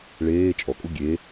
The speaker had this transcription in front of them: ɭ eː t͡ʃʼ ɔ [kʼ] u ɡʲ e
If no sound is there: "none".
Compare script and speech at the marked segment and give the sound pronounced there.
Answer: kʼ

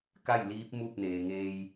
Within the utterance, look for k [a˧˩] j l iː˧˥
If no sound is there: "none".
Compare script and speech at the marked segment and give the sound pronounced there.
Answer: a˥˨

